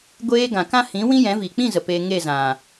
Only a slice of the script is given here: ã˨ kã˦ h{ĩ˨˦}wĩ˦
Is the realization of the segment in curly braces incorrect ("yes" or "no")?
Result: no